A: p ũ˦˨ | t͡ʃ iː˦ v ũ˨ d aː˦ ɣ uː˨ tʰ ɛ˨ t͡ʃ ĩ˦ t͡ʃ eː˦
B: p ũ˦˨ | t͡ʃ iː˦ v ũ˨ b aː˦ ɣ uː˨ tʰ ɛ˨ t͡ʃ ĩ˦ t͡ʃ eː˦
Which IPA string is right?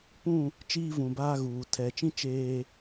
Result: B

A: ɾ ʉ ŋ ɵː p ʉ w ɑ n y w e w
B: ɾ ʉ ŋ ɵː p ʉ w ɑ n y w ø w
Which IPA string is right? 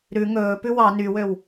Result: B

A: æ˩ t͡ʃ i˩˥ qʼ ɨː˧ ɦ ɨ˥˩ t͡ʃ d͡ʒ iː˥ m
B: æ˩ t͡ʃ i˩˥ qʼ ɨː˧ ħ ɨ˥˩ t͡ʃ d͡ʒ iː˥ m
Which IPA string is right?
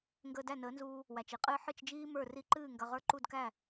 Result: B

